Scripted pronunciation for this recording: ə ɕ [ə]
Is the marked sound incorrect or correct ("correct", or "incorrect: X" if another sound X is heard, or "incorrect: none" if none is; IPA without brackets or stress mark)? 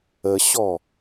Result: incorrect: ɔ